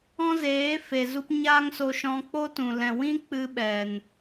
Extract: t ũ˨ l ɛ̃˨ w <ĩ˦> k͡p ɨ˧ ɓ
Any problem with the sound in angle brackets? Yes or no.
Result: no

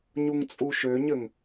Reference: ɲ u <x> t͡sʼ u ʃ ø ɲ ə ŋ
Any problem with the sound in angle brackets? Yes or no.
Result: yes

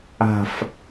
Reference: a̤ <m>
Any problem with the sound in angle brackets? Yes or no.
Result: yes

